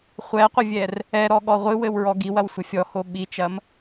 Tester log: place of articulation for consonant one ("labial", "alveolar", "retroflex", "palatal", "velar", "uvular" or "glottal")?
uvular